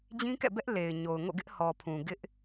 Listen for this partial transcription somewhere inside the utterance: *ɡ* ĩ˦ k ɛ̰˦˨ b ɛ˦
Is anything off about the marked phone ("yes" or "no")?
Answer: yes